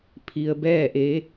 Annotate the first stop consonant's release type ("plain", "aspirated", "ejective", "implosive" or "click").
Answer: aspirated